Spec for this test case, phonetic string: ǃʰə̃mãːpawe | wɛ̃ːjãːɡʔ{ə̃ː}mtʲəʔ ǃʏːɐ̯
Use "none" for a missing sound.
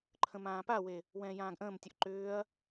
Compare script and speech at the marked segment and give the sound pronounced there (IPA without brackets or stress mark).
ə̃ː